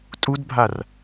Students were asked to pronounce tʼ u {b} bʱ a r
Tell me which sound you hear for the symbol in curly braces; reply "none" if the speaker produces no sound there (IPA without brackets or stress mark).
d